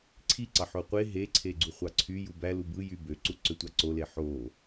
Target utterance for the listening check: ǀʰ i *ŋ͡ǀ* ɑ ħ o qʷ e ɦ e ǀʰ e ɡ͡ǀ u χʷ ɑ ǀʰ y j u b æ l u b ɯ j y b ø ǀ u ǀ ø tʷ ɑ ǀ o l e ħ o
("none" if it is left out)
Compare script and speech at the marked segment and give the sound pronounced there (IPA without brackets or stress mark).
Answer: ǀ